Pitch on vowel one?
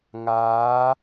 rising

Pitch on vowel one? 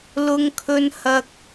high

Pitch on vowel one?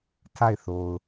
falling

